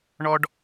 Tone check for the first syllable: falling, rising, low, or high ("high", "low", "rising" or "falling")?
high